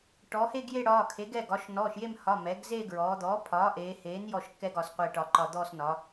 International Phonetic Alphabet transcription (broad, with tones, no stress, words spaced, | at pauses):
ʈɔ˩˧he˦˨ɡje˦˨ ɽɒː˩˧˩kʰe˩˥ɡɛ˩˧˩ɡ ɒ˩˥ʃ nɔː˩˧˩ʃje˦˨mhɒ˩˧˩ mɛ˩˥ɡ zeː˦˨ɡɹɔː˩˧d̪ɔː˩˥ pʰɒː˩˥ʔeː˩˧heː˩˥n jɔ˦˨ʃkːɛ˦˨ɡ ɒ˩˧sqʷe˦˨ʈɒ˦˨ǃɒ˦˨ d̪ɔː˦˨snɒ˩˧